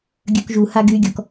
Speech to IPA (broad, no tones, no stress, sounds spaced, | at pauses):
ɡʲ œ k ʒ u h a ɡ y ɡʲ ɔ k